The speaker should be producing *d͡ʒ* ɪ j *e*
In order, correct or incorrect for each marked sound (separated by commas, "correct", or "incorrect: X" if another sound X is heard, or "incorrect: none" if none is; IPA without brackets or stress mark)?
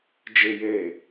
correct, correct